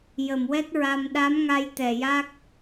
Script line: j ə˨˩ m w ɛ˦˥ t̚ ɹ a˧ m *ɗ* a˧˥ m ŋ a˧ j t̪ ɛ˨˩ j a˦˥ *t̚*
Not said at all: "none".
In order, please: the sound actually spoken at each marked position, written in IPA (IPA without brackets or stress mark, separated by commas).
ɗ, k̚